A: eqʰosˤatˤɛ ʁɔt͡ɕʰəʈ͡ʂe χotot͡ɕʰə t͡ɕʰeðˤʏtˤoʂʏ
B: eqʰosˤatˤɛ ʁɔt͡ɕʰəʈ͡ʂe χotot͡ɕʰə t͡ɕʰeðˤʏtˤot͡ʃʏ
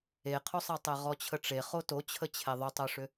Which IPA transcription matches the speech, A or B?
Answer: A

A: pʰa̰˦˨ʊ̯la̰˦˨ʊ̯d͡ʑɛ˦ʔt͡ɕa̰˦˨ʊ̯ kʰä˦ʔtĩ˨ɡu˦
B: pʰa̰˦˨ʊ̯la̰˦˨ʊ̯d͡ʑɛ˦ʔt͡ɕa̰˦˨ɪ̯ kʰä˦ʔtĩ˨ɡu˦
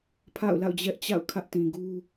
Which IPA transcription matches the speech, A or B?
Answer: A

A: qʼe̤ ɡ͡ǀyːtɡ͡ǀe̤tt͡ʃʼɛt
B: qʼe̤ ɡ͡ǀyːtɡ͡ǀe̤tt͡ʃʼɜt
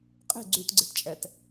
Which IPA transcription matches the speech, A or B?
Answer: A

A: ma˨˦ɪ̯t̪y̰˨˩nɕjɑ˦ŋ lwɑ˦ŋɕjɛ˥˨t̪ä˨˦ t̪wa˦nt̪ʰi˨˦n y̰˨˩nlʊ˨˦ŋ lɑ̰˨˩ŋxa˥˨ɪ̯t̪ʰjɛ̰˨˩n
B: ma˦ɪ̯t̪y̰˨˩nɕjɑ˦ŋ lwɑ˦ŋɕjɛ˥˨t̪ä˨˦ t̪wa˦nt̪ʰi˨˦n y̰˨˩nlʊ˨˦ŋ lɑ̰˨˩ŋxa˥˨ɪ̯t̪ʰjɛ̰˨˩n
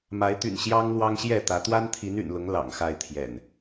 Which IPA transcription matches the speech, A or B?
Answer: A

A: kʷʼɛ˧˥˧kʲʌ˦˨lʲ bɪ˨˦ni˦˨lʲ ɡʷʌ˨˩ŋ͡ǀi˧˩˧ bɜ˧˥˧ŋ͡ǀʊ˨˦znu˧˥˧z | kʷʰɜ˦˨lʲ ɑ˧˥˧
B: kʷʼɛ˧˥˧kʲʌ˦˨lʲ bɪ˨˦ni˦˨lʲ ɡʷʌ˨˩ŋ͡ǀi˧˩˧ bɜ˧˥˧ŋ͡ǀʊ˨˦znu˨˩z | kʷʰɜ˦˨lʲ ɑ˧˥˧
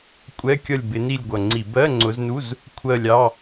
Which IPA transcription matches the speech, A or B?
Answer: A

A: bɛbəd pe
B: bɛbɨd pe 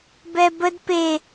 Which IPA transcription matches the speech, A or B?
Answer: A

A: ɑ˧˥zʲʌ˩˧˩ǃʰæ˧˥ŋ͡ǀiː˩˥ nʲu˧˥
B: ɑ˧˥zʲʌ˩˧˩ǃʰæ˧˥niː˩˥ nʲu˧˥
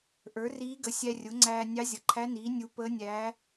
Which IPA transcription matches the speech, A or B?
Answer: B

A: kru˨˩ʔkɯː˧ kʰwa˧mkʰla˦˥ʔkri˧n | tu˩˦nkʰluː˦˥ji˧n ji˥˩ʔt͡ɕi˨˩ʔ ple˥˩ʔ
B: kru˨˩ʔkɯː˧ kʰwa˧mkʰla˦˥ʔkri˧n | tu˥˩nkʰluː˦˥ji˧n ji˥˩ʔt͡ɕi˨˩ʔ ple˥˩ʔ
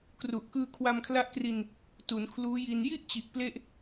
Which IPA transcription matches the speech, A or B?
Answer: A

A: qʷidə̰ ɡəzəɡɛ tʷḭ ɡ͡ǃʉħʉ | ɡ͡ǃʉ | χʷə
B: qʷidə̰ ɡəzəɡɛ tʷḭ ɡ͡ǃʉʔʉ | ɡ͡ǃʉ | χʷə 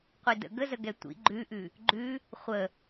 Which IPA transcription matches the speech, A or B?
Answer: B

